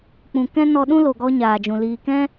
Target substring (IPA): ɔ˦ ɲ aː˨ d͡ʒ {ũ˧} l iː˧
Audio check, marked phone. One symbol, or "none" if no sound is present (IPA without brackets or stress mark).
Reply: ũ˨